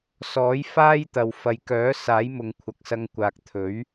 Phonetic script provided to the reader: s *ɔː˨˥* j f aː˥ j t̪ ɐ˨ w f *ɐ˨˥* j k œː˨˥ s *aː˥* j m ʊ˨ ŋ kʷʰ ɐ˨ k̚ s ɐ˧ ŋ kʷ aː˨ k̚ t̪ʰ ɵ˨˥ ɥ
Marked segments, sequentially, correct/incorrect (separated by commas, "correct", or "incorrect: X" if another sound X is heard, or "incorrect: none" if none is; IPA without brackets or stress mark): correct, incorrect: ɐ˨, incorrect: aː˨˥